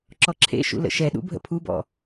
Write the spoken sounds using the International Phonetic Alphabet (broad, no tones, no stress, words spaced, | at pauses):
ǁɔǁʰḛʃṵ lə̰ʃɛɗṵ bʱə̰pʰubɔ̰